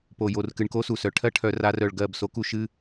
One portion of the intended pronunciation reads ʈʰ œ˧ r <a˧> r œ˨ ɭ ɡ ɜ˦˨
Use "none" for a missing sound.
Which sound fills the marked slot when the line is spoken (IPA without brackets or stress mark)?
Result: a˧